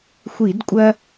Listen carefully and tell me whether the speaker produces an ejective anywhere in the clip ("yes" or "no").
yes